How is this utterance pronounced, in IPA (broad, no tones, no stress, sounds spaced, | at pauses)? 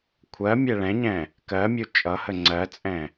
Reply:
kʷʰ ɜ mʲ ɛ ɭ ɛ̃ ɲ ɛ̃ | k ɜ mʲ u t͡ʃʼ ʌ h ə ŋ͡ǀ ɜ t͡sʼ ɛ̃